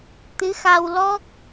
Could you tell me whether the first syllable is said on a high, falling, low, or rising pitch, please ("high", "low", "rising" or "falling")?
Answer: rising